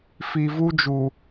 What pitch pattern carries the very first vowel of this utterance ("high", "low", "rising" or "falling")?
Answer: low